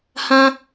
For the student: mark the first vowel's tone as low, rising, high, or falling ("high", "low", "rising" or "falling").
high